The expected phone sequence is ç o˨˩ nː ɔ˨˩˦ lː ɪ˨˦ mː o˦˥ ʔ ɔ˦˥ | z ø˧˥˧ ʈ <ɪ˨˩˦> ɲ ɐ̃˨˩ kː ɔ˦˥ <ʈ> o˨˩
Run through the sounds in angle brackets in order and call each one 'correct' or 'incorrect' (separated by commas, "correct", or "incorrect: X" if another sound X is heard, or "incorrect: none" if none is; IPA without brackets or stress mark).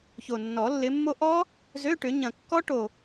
incorrect: ʏ˨˩˦, correct